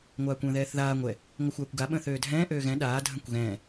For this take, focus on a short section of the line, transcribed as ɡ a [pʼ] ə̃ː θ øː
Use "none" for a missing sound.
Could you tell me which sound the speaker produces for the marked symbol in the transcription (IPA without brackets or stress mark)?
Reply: ɓ